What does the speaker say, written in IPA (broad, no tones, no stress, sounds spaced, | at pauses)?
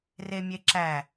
r e mʲ e ǁ æ